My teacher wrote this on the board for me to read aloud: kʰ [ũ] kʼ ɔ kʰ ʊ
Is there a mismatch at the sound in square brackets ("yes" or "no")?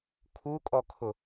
yes